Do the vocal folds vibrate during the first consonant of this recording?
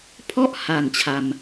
no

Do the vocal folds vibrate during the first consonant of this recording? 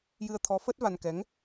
yes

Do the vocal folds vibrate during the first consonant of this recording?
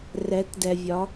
yes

